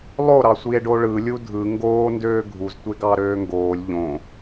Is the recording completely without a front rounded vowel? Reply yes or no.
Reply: no